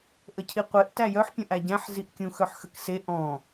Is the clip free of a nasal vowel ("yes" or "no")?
no